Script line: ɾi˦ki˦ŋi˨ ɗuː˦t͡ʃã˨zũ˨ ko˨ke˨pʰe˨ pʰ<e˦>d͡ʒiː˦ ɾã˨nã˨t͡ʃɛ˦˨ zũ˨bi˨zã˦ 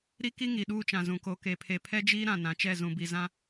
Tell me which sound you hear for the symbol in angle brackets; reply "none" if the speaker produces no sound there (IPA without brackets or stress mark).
ɛ˦